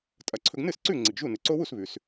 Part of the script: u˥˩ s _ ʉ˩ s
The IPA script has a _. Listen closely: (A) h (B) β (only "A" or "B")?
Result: B